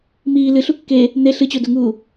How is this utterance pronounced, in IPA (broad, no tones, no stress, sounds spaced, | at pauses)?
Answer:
m iː l ɨ ɬ u kː e | n̪ e ɬ ɨ t͡ɕ o d o ŋ uː